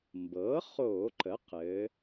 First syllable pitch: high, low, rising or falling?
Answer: rising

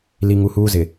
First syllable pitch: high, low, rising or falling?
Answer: low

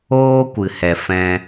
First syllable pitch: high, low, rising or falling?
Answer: high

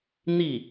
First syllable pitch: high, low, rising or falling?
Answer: falling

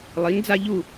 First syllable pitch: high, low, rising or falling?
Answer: rising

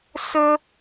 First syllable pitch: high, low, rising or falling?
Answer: high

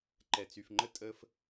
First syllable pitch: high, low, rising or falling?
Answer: low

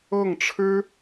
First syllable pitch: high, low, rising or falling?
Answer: falling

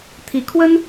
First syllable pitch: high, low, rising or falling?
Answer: rising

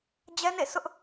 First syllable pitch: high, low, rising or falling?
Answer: high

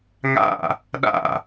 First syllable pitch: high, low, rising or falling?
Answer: falling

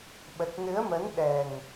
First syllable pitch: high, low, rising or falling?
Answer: low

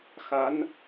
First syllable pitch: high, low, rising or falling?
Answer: rising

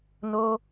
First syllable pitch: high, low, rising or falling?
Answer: high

